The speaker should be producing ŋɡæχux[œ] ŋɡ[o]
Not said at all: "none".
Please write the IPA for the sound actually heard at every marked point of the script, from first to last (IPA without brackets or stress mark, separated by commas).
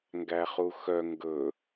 œ, ɵ